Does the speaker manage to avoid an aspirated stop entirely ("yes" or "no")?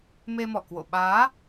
yes